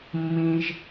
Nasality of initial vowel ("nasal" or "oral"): nasal